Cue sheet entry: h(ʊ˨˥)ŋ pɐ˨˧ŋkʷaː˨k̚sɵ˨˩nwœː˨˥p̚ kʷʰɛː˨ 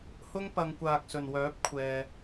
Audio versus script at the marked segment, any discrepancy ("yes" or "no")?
yes